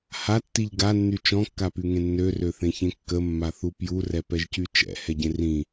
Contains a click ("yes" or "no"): no